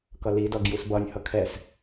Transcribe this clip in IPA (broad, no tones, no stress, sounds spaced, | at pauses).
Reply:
k ʌ l i d ʌ ɡ j u s b ʌ nʲ h ʌ kʰ ɛ s